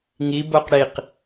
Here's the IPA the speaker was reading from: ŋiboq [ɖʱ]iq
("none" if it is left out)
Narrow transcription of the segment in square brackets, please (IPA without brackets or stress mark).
ɽ